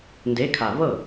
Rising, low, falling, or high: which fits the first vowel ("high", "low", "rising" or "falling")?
rising